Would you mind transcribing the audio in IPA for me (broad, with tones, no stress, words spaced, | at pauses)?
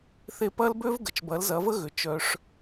θe˧ pɐ˦lbø˦vɡə˨t͡ʃ bɐ˨˦lzɐ˨˦və˦ ɣʏ˨t͡ʃœ˧ʂ